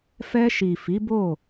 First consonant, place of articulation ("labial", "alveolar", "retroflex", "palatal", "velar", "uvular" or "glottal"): labial